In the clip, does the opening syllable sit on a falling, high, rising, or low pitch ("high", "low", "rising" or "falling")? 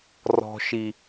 low